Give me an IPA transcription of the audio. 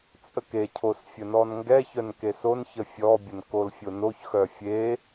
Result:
t͡sʼ ə k e cʰ o s fʲ ə n ɔ n ŋ ɡ ɛ ç œ n k e s o n ç ə fʲ ɔ bʲ ə n k o l fʲ o n o ç x œ fʲ e

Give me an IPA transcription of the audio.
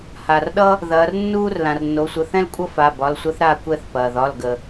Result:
h a˩ r ɗ ʌ˥ | ð ɐː˩˧ r nː uː˥ r l ã˩ r nː o˩˧ sʷ ə˩˧˩ θ ɛ̃˥ l kʷʼ ʌ˥ f a˩˧˩ b ɒ˩˧˩ l sʷ ɐ˥ θ ɾ aː˦˨ kʷ ɛ˦˨ θ p ɐː˩ ð ɒ˩˧˩ l ɡ ə˩

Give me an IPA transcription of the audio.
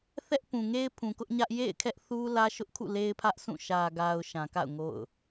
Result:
θ ɛ˦ ʔ p ũ˨ ŋ e˦ ɪ̯ pʰ ũ˨ k ʊ˦ ʔ ɲ ä˦ ʔ j ḛ˦˨ ɪ̯ kʰ ɛ˦ ʔ θ u˦ l ä˦ ʃ ʊ˦ ʔ kʰ ṵ˦˨ l e˦ ɪ̯ pʰ ä˦ ʔ sʰ ũ˦˨ ʃ ä˨ ɡ a˨ ʊ̯ ʃ ã˨ k a̰˦˨ ʊ̯ ŋ o̰˦˨ ʊ̯

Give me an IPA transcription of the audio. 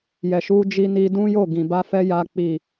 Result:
j ɛ˨ ʃ u˧ d͡ʒ i˧ n i˧ d ũ˦ j o˦˨ ɡ ĩ˨ b a˧ f ɛ˧ j a˧ k͡p i˨

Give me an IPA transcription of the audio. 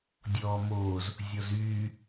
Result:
dʲ ɔː m oː z | zʲ ɔ z yː

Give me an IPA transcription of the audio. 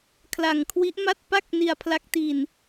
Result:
kʰ l a˨˩ ŋ kʰ w i˦˥ ʔ m a˥˩ t̚ p a˥˩ k̚ n i˧ a̯ pʰ l a˦˥ k̚ t i˧ n

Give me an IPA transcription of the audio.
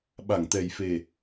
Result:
ɓ a˧˩ ŋ t̪ ɛ˨˩ j f e˨˩

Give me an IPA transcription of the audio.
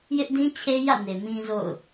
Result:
j ɪ˦ ʔ d ĩ˦ t͡ɕʰ e˦ j ä̰˦˨ n e˨ m ĩ˦ z o̰˦˨ ʊ̯

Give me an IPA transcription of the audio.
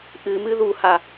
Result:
ʔ ɨ m ɨ ð u h a

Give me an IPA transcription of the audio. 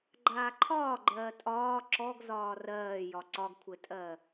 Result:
ɡ͡ǃ aː ǃʰ ɒː ɡ͡ǃ ɜː tʼ ɒː ǁ ɔ ɡ z ɒː r ɜː j ɒ ǀ ɒ ɡ kʷʰ ɘ tʼ ɜ

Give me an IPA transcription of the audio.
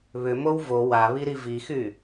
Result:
β ʏ m o w v o w a β i ɾ i v i x y

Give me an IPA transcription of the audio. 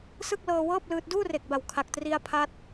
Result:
s ɯ˥˩ k̚ l ɤː˧ w ɤː˥˩ p̚ l ɯː˦˥ t̚ d uː˥˩ r e˨˩ k̚ b a˨˩ w kʰ a˨˩ k̚ t r i˧ a̯ pʰ a˦˥ t̚

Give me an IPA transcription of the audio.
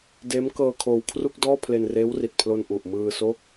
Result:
d eː˦˥ m k ɤː˧ kʰ oː˧ w kʰ r u˥˩ k̚ d ɔː˥˩ pʰ l e˧ n r eː˦˥ w r i˨˩ t̚ pʰ l o˧ n ʔ u˨˩ ʔ m ɯː˧ s o˦˥ k̚

